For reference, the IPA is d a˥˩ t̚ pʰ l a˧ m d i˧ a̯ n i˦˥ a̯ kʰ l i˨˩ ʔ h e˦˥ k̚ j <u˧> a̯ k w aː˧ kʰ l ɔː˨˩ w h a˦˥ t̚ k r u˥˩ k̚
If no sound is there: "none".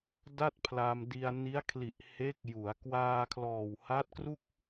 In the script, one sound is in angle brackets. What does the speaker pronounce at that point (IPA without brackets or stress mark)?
u˩˦